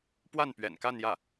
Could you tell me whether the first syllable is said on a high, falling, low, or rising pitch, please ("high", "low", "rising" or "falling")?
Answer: falling